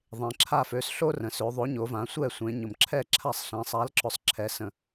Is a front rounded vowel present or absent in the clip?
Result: present